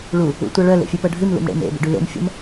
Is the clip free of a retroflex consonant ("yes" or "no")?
no